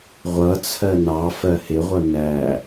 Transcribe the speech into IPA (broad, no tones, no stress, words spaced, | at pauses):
ʁʷʌt͡sʰɜ nɑfɜ hɪʁʷʌ næ